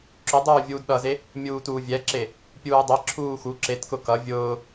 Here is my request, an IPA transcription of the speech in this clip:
ǁ ʊ dˤ uː vʲ uː d ɗ ʌ z e | mʲ uː t uː vʲ ɛ ǁ e | pʲ uː dˤ e ǁʰ uː x u ǁ e t k ʊ k ʌ vʲ ʊː

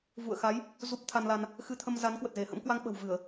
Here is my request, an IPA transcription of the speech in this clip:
v ṵ˧˨ ə̯ x a˨˦ j | z u˦˥ p̚ t̪ʰ a˧ n l a˧ n | x ɨ˧ t̪ʰ ə˧ m z a˨˦ n k w ə˨˩ t̚ z e˧˩ h ə̰˧˥ m k w a˧ ŋ ɓ ə̤˨˩ w v ɨ˧˩˨ ə̯

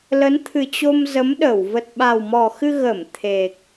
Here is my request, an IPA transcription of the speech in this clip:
l ə˨˦ n t̪ʰ ɨ˨˩ t͡ɕ o˧ m z ə˨˦ m ɗ ə˧˩ w v ə˨˩ t̚ ɓ a˨˩ w m ɔ˨˩ x ɨ˧ ɣ ə˧˩ m t̪ʰ e˨˩ k̚

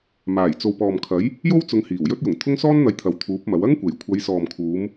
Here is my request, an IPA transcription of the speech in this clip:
m aː˨˩ j t͡s o˨ w p ɔː˨ m kʰ ɐ˨˥ j | j o˥ w t͡s ʊ˨˧ ŋ h iː˨˩ w j ɵ˥ t̚ j ʊ˨˩ ŋ t̪ʰ ʊ˥ ŋ s ɔː˥ n n̪ ɐ˨˥ j t̪ʰ ɐ˨ w t̪ʰ uː˨˥ p̚ m ɐ˨˥ w ɐ˥ ŋ kʷ e˨˩ j kʷʰ ɐ˨˧ j s ɔː˨ m kʰ uː˨˧ m

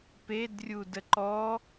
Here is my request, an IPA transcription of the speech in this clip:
p e d rʲ u d ə ǃ ɔ

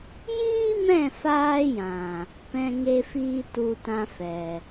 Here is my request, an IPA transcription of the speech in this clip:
j iː˦ m ɛ̃˦˨ f aː˧ j ã˨ | p ɛ̃˦ ŋ e˦ f iː˦ t u˧ t ã˧ f ɛ˨

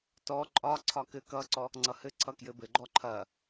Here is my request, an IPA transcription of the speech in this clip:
t ɔ ǃʼ ɒ ǀʰ ɒ k ɘ k ʌ ǀ ɔ | ŋ͡ǀ ʌ h ɘ ǀʰ ʌ k j ɘ b ɘ ɡ͡ǃ ɔ ǃʰ ɐ

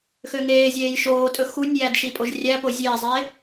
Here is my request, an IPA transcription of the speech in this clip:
x ø ŋ eː zʲ eː j ʃ oː tʼ ɵ x u nʲ j æ d ʃ i pʼ o ʒ rʲ æ p o zʲ eː zˤ eː

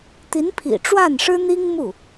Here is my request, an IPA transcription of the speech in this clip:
t̪ i˧˥ n pʰ ḭ˨˩ ʈ͡ʂ w a˥˩ n ʂ ɻ̩˥ n̪ i˥ ŋ m u˥˩

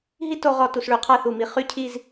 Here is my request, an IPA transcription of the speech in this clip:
ɦ i˥ t o˧ ʁ ɔ˧˩ t u˧˩ s ɭ y˩˧ qʰ a˥˧ θ u˧˩ m i˧ χ y˥ cʰ i˥˧ z

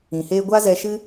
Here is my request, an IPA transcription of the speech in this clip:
ĩ˨ h eː˧ ɡʷ a˦ z ɛ˧ ʃ ɨ˦

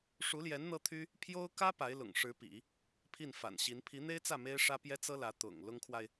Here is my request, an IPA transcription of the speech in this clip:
ʂ u˧˥ l j ɛ˧˥ n n̪ ɤ˥ t̪ʰ y˥ | pʰ j o˥ ʊ̯ k ä˥ p a˧˥ ɪ̯ l ʊ̰˨˩ ŋ ʂ ɻ̩˧˥ p ḭ˨˩˦ | pʰ i˥˩ n f a̰˨˩ n ɕ i˧˥ n pʰ i˧˥ n̪ e˥ ɪ̯ t͡s ä˥˩ m e˥ ɪ̯ ʂ ä˥ p j ɛ˥ t͡s ɤ˥ l ä˧˥ t̪ ʊ̰˨˩ ŋ l ʊ˥ ŋ kʰ w a˨ ɪ̯

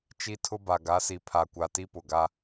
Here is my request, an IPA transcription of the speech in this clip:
t͡ʃ i˦ tʰ ʊ˦ b a˨ ɡ a˨˦ s i˨ pʰ a˨ kʷ a˨ t i˦ p ʊ˨ ɡ a˦

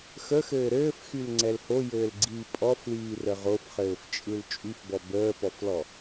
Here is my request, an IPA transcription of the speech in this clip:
x ə x ɘː ɾ ɘː f x y l ŋ͡ǀ ɛ l h o j ɘː l ɡ͡ǀ iː pʼ ɔ f l iː r ə ʁ o f χ ɘː f t͡ʃʼ ɯ l t͡ʃʼ y f b ɔ b əː p ɔ f l ɔ

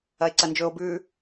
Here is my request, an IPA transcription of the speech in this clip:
ɐ e̯ ǀ ɐ n d͡ʒ ɵ o̯ b ʉ

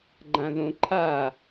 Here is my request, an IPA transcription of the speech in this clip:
ɡ͡ǃ ã ð õ ǃʰ a

